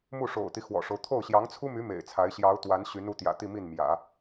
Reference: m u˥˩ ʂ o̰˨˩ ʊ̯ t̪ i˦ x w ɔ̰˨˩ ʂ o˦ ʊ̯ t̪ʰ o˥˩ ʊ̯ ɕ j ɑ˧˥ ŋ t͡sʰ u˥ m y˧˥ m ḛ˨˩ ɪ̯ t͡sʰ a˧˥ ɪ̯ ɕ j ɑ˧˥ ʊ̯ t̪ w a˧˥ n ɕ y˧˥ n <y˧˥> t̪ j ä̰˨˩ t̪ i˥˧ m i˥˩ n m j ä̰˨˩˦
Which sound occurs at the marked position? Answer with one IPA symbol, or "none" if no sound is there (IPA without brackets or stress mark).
u˧˥